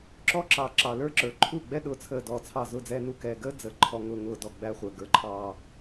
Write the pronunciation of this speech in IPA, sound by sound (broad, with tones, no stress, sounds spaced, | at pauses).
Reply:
ǁ ɔ˦ ǁ ɑ˨ ǁ ɑ˨ l ə˞˦ ǁ ə˞˨ ǃʰ u˦˨ ɡ͡b ɛ˦ ɗ ʊː˨ t͡sʰ əː˨ d ɔ˨ t͡sʰ ɑ˦˨ z ʊ˦˨ d͡z ɛː˦ n u˦ k ɛː˨ ɡ əː˦ d͡z əː˨ ǃʰ ɔ˨ ŋ ʊː˨ ŋ ʊː˨ d ɔ˨ ɡ͡b æ˦ χʷ əː˨ ɡ ə˞˨ ǃʰ ɑː˨